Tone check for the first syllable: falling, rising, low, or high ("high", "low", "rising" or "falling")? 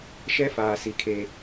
high